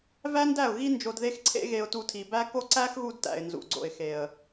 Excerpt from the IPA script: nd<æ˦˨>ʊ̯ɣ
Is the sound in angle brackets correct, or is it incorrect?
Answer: correct